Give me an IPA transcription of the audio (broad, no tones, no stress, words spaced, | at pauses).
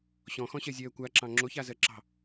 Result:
ɕɔ̃xɔ̃ɕɜzʲɜː kʷaǁɑ̃ ŋ͡ǁoçazɜǁɑ̤